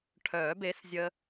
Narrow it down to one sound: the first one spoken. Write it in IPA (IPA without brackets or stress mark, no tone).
ʈʰ